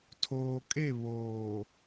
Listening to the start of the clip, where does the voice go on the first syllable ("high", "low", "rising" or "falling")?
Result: low